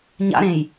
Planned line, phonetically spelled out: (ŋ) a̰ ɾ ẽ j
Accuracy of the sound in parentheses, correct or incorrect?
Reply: incorrect